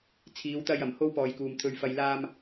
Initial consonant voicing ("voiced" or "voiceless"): voiceless